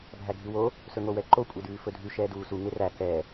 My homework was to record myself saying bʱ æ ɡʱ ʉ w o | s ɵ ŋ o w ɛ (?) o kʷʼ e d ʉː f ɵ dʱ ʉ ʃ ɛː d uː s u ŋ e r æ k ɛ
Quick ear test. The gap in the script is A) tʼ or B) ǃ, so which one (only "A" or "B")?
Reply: B